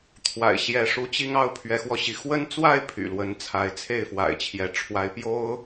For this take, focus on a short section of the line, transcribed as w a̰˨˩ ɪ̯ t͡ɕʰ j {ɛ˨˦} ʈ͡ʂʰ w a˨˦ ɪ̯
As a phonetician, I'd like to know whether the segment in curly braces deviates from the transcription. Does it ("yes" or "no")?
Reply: no